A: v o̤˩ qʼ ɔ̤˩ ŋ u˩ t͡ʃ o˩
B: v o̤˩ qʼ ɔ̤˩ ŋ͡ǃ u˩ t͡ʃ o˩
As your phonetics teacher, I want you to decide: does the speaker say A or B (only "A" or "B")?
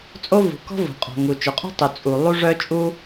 A